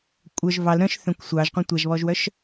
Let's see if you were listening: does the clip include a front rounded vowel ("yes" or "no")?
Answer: yes